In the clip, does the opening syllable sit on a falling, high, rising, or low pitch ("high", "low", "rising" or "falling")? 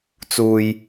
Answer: low